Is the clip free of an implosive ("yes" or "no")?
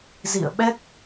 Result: no